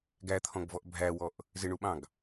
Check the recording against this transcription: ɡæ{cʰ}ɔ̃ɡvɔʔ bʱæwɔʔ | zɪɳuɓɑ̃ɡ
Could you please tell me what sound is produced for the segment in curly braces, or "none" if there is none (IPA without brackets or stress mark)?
t̪ʰ